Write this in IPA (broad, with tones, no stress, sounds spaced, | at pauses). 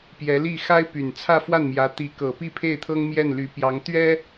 p j ɛ˧˥ l i˥˩ x a˥ ɪ̯ p y˨˩ n t͡sʰ ä˥˧ f w a˥˩ n m j ä˧˥ t̪ i˧˥ k ɤ˨˩ p i˥˧ pʰ e˥˩ ɪ̯ t̪ʰ ɤ˥ ŋ m j ɛ˥˩ n l y˧˥ p j ɑ˧˥ ŋ t̪ ɥ ɛ˥